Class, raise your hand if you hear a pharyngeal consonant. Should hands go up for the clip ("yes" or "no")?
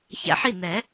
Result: yes